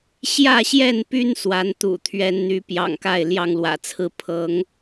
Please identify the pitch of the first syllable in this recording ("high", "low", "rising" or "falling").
falling